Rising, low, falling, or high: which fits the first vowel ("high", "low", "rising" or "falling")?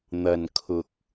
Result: low